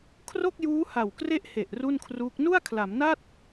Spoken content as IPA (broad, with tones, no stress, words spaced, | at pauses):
kʰro˥˩k̚juː˦˥ha˨˩wkre˦˥ʔ he˨˩ʔ ru˥˩nkʰruː˦˥k̚ nu˥˩a̯kʰla˩˦mna˥˩t̚